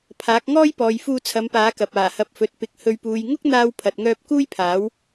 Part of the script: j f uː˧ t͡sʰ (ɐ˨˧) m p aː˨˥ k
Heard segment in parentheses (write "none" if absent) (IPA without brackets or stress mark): ɐ˨˧